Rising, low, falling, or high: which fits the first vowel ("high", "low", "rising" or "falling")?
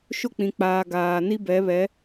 high